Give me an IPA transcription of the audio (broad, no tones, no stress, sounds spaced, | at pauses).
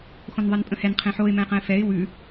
x õ n ðˤ e n pʼ ə̃ h ɛ n qʰ ẽ ħ o ɪ̯ m ɛ̃ ɪ̯ q ə̃ ɪ̯ f ɛ ɪ̯ w ʉ